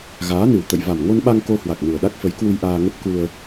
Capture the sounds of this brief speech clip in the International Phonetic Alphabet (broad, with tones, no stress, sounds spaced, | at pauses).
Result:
ɣ aː˨˦ n ɨ˨˩ w t̪ ə̰˧˨ j v a˨˩ m ŋ o˧ n ɓ a˧ ŋ k o˧ h w a˨˩ k̚ n u˨˩ ə̯ ɗ a˦˥ k̚ f ə˨˦ j k w u˧ j ʔ aː˧ ŋ ə˦˥ p̚ k u˧ ə̯